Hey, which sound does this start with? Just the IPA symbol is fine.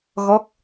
ɣ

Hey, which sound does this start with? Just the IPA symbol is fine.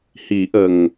h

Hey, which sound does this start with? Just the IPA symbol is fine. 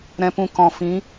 ɾ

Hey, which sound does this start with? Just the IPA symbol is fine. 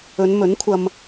ɵ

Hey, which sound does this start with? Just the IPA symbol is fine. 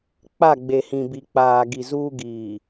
k͡p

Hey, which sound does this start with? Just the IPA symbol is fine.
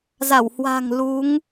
z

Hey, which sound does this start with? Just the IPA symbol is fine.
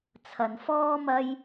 t͡sʰ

